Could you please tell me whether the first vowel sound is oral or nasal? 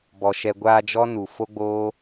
oral